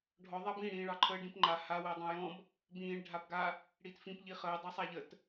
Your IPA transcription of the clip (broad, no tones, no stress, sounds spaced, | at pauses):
ɖʱ ɔ ðˤ a b ĩ ɽ ĩː ɭ ɑ ǃʰ əː ɖ ĩ p ŋ͡ǃ a h a w əː dˤ ã j ɔ̃ b | b ĩː ɭ ɖʱ a b ɡ a | ɽ iː t f ĩ p ʎ i χ əː dˤ ɑ sˤ a ʎ ə t